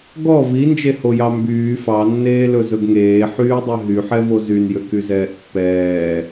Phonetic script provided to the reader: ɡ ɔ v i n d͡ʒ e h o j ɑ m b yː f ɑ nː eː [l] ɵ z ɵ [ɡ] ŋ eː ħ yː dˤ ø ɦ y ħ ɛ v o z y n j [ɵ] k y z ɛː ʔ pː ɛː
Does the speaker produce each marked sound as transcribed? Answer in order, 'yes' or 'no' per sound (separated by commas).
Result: yes, yes, no